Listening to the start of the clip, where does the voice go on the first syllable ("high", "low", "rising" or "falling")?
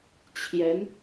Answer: rising